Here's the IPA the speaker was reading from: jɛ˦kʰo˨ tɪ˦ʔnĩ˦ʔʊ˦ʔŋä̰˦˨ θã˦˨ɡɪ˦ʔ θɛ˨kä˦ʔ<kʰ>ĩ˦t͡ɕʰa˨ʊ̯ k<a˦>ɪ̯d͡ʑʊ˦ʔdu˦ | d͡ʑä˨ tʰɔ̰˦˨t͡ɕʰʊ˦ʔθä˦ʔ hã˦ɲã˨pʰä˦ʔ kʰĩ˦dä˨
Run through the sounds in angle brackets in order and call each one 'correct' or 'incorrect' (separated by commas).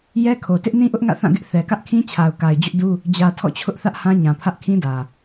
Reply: correct, incorrect